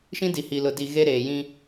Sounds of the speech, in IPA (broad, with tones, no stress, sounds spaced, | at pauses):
ʃ ĩ˦ d i˨ h i˨ l ʊ˨ d i˨ ɣ e˦ ɾ eː˨ j ĩ˦